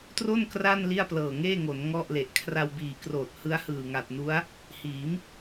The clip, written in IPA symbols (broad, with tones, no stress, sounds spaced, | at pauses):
t r o˥˩ n k r a˥˩ n l i˥˩ a̯ p l ɤː˨˩ ŋ eː˥˩ ŋ o˩˦ n ŋ ɔ˥˩ ʔ l e˨˩ ʔ kʰ r a˧ w b iː˨˩ k r oː˨˩ t̚ h ɯ˦˥ a̯ h ɯː˨˩ ŋ a˨˩ t̚ n u˦˥ a̯ | h iː˩˦ m